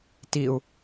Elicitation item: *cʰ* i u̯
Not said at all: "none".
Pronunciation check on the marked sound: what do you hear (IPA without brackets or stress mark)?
t